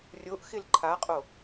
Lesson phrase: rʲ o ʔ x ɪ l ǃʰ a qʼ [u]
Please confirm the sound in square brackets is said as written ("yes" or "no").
no